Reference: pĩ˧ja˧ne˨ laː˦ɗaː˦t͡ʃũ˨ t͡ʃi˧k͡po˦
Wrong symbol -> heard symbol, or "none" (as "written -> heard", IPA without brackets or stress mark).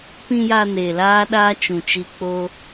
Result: none